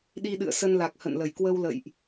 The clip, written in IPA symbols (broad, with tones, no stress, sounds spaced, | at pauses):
ɗ i˧ ɗ ɨ̰˧˨ ə̯ s ə˧ n l a˨˩ k̚ h ə̰˧˨ n l ə˧˩ j k w ə˧ w l ə̰˧˨ j ʔ